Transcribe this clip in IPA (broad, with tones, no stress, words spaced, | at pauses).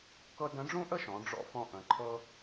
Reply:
kɤ˧ də̃˧˥ɖ͡ʐũ˥ʔə˥ʃɔ̃˩˧ ɖ͡ʐɔ̰˧fɔ̃˧ʔə̃˩˧ ǃʰɤ˧